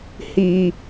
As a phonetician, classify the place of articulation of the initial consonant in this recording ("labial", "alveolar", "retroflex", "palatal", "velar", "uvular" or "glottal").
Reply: glottal